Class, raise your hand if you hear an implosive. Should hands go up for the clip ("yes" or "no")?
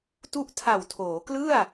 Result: no